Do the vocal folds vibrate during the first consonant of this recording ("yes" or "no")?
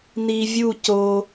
yes